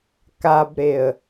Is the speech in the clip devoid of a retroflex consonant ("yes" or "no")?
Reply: yes